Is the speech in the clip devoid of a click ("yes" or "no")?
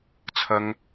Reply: yes